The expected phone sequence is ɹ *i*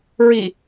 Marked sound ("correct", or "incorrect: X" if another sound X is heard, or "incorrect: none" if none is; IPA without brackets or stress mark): correct